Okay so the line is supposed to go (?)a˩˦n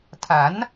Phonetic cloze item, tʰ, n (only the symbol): tʰ